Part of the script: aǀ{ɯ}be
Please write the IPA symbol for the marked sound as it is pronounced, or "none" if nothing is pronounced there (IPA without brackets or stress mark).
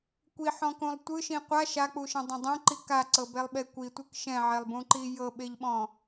ɤ